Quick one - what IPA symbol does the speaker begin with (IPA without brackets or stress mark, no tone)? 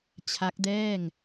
t͡ɕʰ